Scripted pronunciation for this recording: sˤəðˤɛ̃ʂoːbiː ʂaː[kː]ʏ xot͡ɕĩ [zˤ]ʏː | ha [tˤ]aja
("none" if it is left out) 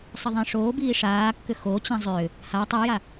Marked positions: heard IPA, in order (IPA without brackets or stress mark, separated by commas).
kː, zˤ, tˤ